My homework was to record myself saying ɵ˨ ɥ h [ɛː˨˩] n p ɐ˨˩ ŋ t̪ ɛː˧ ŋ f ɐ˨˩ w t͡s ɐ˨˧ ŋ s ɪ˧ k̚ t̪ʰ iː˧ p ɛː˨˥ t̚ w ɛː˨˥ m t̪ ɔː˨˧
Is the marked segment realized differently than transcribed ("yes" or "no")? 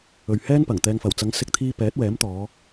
yes